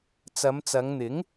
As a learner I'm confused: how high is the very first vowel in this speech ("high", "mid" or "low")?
low